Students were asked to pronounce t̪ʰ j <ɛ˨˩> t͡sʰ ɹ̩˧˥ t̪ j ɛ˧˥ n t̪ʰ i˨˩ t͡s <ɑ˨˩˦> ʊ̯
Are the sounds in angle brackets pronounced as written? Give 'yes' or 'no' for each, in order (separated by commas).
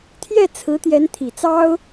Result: no, no